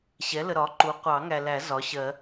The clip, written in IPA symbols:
ɕ ɛ˩˥ l ə˨ ɾ ɒ˩˥ ǃ u˩˥ qʷ ɑ˨˩˦ ŋ æ˨ l æ˨˩˦ z ɒ˩˥ ɕ ɜ˨˩˦

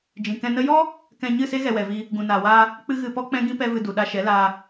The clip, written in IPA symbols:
d͡ʒ ĩ˨ k ɛ̃˧ n ə˦ j ɔ˦ | k ɛ̃˧ ɲ ɨ˦˨ s e˦ ɣ ɛ˧ w ɛ˨ v i˧ | ɡ ũ˨ n aː˨ w aː˧ | k͡p ɨ˦ ɣ ɨ˧ p ɔ˦ k͡p ɛ̃˦ ɡ ĩ˦ p ɛ˦ v ɨ˧ d u˨ ɗ a˧ ʃ ɛ˨˦ l aː˧

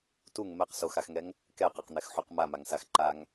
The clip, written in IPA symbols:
t u ŋ m ɛ q s o x a x ŋ ɛ ŋ | k ɛ q ɛ q n̪ ɛ x ħ u q m a m a ŋ s a x ǃ a ŋ

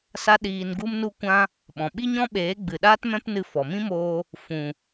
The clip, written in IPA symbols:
s a˦ ɗ iː˧ n ɡ u˦ m n u˦ kʷ ã˦ | ɓ ɔ̃˨ ɓ i˦ ɲ ɔ̃˦ ɓ eː˨˦ ɡ͡b ɨ˨ ɗ aː˦ t m ɛ̃˦ p n ɨ˧ f ɔ˨ m ĩ˦ m oː˧ | f ũ˨

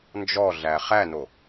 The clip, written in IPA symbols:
n d͡ʒ ɔ ɮ æ χ æ n o

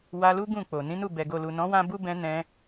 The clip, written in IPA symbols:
w a˧ l u˦ ɡ ũ˦˨ k͡p o˨ n ĩ˨˦ n u˦˨ b ɛ˨ ɡ o˨ l u˨ n ɔ̃˨˦ w ã˧ b u˦ b ɛ̃˧ n ɛ̃˧

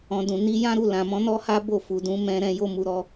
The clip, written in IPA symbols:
ɔ̃˨ d ũ˨ n i˨˦ j ã˦ ɾ u˦˨ l ã˨ m ɔ̃˨˦ n ɔ˦ h a˦ b o˦˨ f u˨ d ũ˨˦ m ɛ̃˧ ɾ ɛ̃˧ j o˧ m u˨ ɾ ɔ˧

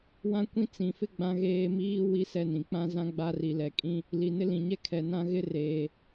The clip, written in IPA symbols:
w ã˦ kʷ ĩ˦ t͡s ĩ˨ f ɪ˦ ɡ͡b ã˦ ɣ eː˦ m iː˦ w i˦ s ɛ˦˨ n ĩ˨ k͡p ã˦ z ã˦ ɡ͡b a˦ r i˨ l ɛ˨ kʼ ĩ˦ | l i˨ n ɪ˦ l ĩ˨ ɲ ɛ˦ kʰ ɛ˨ n ã˦ ɣ ɪ˦ r eː˨

